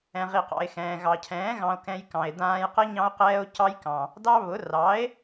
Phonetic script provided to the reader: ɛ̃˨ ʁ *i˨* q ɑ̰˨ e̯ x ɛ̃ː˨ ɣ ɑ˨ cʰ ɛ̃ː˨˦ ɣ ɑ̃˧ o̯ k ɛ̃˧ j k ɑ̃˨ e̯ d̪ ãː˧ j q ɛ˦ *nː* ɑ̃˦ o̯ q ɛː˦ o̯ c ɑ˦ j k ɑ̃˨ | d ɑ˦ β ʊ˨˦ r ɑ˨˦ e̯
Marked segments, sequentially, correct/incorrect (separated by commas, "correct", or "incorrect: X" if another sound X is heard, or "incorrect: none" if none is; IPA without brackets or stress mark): correct, incorrect: ɲ